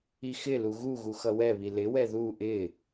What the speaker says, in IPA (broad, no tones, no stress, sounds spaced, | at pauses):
i x ɪ l u ɣ u ɣ u x ʌ w ɛ β i l ɪ w ɛ ð u ʔ ɪ